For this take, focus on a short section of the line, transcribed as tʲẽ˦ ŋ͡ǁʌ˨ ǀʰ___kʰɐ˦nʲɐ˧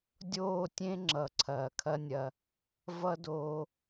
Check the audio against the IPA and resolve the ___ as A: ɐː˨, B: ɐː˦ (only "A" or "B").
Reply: A